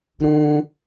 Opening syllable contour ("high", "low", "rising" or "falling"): high